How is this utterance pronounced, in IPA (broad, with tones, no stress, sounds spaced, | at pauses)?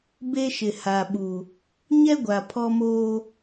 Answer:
b e˦ ʃ ɪ˨ h a˨ ɓ u˨ | ɲ ɛ˦ ɡʷ a˨ pʰ ɔ˦ m oː˦